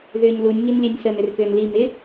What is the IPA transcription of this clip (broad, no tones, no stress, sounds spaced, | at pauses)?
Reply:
ð ʏː ɲ l u nʲ ŋ i n lʲ ɛ nʲ s ə n ʏ r k ʏː n l i m ɪ